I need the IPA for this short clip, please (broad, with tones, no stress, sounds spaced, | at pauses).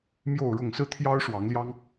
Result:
m j o˥˨ ʊ̯ ɻ ʊ˥˨ ŋ s ɹ̩˥˨ t̪ʰ j ɑ˦ ʊ̯ ʂ w ɑ˨˦ ŋ l j ɑ˦ ŋ